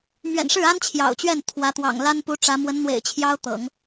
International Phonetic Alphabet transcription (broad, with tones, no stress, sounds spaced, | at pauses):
m ɥ ɛ̰˨˩ n ʂ ɻ̩˥˩ a˥ n t͡ɕʰ j ɑ̰˨˩ ʊ̯ t͡ɕ ɥ ɛ˥˩ n t̪ʰ w ä˧˥ t̪ w ɑ̰˨˩ ŋ l a˥ n p u˧˥ ʈ͡ʂ ä˧˥ m w ə˧˥ n n̪ w ḛ˨˩ ɪ̯ t͡ɕʰ j ɑ˥ ʊ̯ t̪ ɤ̰˨˩˦ ŋ